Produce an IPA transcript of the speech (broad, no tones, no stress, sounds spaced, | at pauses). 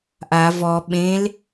ʔ a v ɔ ɓ ẽ l